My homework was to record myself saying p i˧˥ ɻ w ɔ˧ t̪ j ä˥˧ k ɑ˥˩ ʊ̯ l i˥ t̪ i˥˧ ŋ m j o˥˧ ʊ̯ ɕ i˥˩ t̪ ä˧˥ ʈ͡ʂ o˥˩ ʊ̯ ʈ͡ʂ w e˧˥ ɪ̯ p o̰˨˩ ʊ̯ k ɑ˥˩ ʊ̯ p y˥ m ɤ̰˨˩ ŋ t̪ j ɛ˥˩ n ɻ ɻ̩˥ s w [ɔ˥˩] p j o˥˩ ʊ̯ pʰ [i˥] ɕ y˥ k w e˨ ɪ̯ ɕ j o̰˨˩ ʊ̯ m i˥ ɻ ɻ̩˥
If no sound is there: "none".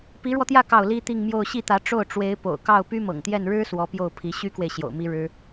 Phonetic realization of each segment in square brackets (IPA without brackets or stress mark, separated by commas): ɔ˧˥, i˧˥